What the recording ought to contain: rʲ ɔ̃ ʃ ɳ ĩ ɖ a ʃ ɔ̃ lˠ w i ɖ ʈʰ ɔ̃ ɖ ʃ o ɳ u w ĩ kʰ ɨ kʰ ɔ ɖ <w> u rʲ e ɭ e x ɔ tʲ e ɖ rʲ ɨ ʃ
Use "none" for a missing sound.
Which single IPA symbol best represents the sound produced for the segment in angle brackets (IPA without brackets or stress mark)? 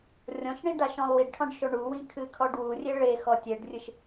w